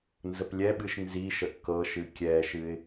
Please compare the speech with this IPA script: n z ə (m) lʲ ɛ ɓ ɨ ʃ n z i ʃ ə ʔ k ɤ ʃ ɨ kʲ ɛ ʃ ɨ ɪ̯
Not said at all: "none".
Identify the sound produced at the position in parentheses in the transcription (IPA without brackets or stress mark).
p